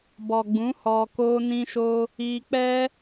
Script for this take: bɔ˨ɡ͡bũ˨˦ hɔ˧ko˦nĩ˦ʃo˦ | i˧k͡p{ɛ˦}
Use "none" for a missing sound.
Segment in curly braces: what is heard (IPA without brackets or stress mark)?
ɛ˦